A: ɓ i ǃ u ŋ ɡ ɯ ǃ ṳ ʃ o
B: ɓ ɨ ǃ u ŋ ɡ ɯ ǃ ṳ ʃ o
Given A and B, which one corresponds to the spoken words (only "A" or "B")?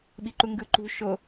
A